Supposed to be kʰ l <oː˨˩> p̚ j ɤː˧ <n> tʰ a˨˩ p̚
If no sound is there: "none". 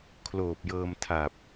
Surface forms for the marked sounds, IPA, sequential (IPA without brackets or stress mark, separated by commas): oː˨˩, m